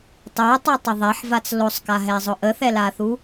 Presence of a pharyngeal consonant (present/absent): present